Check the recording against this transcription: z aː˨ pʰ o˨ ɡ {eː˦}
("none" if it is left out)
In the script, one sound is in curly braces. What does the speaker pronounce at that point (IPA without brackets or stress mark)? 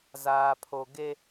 e˦